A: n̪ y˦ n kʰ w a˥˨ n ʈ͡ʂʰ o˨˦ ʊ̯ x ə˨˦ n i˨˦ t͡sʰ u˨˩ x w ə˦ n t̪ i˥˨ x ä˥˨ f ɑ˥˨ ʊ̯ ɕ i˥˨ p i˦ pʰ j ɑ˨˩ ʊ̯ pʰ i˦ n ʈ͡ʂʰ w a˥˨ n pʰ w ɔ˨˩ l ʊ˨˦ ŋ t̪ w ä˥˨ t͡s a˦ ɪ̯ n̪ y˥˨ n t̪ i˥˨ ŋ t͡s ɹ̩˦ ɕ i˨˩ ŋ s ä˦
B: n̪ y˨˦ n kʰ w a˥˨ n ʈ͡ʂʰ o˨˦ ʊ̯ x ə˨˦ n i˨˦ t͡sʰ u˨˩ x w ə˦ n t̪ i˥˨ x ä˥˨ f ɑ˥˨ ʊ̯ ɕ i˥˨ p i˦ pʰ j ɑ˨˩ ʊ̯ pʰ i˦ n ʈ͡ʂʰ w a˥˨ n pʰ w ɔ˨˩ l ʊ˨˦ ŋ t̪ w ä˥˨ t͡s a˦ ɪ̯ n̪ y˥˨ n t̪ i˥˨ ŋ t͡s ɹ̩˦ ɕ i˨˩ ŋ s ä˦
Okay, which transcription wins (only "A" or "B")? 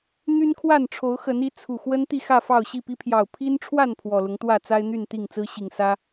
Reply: A